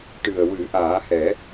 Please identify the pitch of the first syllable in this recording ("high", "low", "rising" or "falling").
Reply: low